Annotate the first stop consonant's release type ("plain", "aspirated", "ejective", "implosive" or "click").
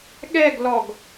implosive